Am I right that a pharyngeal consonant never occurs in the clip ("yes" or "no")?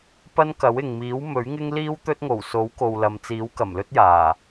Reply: yes